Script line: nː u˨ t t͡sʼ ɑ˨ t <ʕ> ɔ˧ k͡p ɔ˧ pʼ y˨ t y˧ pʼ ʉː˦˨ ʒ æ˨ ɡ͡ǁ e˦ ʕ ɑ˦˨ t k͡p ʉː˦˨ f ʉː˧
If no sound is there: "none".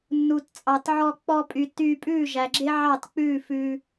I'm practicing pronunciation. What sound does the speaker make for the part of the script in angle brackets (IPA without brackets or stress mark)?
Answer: ʕ